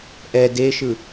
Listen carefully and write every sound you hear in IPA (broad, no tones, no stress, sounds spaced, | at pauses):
ʔ ɛ d e ʃ ɯ